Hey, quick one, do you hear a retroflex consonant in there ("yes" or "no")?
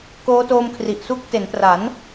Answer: no